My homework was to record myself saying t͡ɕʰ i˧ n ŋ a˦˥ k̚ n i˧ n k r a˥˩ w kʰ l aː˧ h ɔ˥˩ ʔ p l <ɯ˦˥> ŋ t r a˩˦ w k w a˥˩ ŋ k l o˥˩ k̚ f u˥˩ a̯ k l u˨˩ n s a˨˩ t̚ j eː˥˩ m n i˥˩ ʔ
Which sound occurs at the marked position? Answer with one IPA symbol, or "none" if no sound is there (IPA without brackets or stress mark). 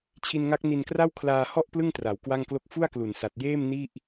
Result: ɯ˥˩